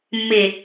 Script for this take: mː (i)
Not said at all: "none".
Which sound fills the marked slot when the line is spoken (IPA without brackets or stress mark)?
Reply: e